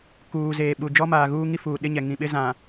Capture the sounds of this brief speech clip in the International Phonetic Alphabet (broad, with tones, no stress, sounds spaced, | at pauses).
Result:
k uː˨ z eː˨ ɓ u˨ d͡ʒ ɔ˦ m aː˨ ɣ uː˦ ŋ i˦ f uː˨ ɗ ɪ˦ ɲ ɛ˨ ŋ ĩ˨ ɓ ɪ˦ z ã˨